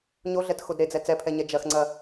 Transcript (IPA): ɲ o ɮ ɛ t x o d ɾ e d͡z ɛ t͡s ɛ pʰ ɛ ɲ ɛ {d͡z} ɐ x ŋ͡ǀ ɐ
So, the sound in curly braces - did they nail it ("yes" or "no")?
no